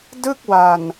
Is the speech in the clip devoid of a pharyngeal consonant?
yes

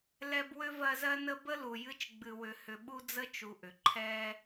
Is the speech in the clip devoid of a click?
no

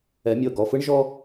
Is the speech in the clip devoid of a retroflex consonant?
no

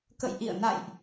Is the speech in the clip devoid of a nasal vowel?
yes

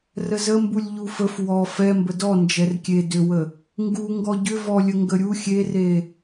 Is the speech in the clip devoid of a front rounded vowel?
no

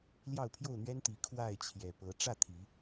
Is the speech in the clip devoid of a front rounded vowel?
yes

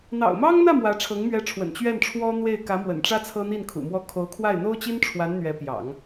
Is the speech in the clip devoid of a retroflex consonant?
no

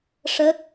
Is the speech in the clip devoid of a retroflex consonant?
no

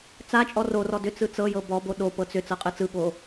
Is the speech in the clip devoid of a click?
yes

